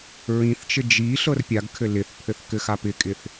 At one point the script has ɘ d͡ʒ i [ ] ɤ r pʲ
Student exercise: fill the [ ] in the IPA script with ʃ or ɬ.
ɬ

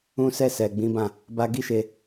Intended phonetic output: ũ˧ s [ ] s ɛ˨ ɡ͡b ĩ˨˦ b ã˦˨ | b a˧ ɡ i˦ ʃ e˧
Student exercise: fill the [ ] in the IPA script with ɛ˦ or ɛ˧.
ɛ˧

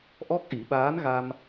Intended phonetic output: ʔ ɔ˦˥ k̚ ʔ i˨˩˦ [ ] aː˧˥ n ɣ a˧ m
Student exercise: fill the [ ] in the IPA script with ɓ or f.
ɓ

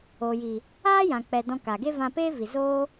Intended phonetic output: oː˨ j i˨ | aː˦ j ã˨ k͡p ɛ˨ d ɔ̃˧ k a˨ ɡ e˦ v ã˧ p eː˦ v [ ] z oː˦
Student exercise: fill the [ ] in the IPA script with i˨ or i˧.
i˨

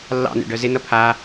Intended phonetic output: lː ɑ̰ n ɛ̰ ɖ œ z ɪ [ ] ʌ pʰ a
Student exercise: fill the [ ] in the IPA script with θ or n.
n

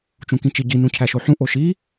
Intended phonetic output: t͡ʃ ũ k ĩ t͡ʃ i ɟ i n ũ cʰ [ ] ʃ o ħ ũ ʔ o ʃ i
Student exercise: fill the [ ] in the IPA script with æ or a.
æ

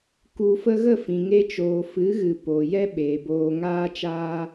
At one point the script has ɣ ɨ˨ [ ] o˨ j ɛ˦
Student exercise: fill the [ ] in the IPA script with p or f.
p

